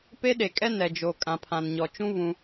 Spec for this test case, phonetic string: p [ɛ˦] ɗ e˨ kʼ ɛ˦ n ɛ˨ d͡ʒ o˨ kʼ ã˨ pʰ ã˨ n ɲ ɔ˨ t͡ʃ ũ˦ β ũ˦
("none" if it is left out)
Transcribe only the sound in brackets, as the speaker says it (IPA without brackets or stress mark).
e˦